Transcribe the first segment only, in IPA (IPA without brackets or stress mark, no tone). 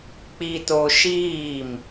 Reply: k͡p